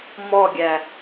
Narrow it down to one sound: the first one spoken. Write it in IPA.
m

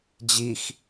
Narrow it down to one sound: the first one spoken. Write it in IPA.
d͡ʑ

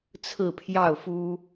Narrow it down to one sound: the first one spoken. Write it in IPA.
t͡sʰ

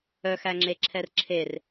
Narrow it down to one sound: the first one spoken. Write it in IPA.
œ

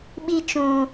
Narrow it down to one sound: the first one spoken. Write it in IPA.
ɓ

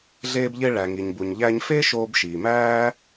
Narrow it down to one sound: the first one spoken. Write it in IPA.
ɮ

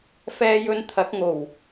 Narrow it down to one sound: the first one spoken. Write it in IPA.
f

